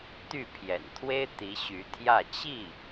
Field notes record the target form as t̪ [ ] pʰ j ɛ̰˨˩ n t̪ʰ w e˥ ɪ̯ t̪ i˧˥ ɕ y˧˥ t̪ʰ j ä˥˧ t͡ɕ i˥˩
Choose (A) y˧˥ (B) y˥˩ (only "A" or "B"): B